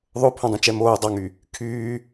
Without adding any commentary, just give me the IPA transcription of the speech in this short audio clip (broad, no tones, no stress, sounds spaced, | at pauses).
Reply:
ðˤ o pʰ õ dˤ ũ t͡ʃ ɛ m oː dˤ ɑ ŋ y | kʰ yː